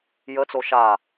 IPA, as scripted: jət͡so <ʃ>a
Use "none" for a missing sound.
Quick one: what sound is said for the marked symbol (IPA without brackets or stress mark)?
ʃ